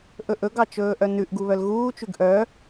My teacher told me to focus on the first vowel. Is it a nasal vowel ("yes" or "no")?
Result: no